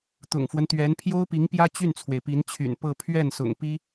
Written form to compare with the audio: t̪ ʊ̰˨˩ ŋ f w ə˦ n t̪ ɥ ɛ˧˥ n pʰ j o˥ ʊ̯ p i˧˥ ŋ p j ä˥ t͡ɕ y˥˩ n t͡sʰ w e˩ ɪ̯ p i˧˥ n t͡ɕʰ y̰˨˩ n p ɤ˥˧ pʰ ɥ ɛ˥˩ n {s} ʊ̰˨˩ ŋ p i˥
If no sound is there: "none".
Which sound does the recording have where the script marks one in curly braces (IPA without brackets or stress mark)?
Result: s